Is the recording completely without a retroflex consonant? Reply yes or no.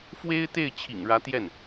no